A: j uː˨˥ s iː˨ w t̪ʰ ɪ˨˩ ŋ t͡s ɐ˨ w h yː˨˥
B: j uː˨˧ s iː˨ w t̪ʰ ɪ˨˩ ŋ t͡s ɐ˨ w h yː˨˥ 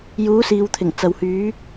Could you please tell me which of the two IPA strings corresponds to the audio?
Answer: A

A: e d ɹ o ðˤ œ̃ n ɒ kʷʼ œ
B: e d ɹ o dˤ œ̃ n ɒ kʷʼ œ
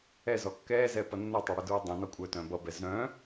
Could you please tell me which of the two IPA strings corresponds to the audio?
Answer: B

